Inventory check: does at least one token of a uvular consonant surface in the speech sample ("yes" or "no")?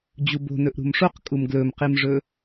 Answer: yes